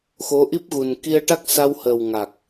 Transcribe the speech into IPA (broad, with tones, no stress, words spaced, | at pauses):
xo˧˥ ʔi˦˥p̚ɣu˨˩n ki˧ə̯ʈa˦˥k̚sa˧whəː˨˩w ŋa˨˩k̚